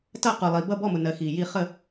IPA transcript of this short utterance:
t ʌ˥˩ q u˩ lˠ i˩ b ʌ˥˩ b ɔ˥˩ m ʊ˩ n ɜ˩ x i˩ j i˥˩ χ ə˥˩

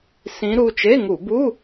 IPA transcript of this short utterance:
s ĩ˧˥ ɾ u˩˧˩ t͡ʃ e˧˥˧ ŋ u˧˩˧ b u˧˥˧

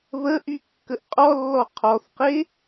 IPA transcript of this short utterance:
β ə ʔ y kː ə ʔ qʼ ɔ lː ɔ qʰ ɔ θ q e

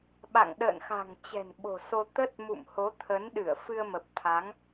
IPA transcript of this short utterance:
ɓ a̰˧˨ ŋ ɗ ə̰ː˧˨ n x a̤˨˩ ŋ t͡ɕ ɛ̤˨˩ n ɓ o̤˨˩ s o˧ t̪ ə˦˥ t̚ m ṵ˧˨ m h o˨˦ t̪ʰ ə˨˦ n ɗ ɨ˧˩ ə̯ f ɨ˧ ə̯ m ə˨˩ p̚ t̪ʰ a˨˦ ŋ

